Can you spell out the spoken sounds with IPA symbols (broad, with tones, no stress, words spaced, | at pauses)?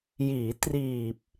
jiː˩˦ triː˨˩p̚